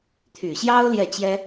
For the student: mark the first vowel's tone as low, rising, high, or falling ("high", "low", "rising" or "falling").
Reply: low